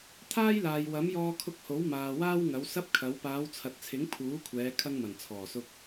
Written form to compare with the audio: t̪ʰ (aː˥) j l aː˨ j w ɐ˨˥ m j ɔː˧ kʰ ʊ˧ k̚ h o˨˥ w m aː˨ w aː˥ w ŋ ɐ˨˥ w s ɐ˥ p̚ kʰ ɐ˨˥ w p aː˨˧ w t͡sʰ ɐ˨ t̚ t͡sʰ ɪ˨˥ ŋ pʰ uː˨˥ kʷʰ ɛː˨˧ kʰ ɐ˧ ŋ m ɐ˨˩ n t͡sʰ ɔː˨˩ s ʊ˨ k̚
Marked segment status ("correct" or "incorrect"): correct